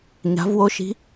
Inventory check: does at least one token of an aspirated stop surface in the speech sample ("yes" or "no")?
no